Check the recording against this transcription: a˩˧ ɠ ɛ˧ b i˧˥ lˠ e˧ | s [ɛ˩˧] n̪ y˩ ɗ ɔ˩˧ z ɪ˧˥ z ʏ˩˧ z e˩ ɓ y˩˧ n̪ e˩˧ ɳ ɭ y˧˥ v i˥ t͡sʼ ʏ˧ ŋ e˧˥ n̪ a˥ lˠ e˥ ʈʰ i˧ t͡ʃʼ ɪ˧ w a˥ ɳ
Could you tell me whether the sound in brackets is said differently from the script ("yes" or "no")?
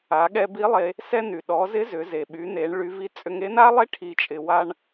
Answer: yes